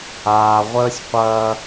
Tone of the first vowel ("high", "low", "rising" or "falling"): low